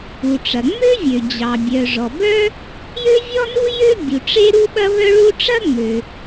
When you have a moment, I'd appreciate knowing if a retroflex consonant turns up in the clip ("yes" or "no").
yes